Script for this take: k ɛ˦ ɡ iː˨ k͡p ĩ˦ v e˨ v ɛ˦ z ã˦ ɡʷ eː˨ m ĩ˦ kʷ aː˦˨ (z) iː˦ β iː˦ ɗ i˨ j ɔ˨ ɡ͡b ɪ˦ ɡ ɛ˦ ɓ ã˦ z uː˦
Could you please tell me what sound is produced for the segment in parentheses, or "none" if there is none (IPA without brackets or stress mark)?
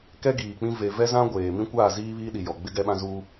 z